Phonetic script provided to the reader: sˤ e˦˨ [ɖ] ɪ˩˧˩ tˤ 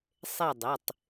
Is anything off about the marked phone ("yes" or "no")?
yes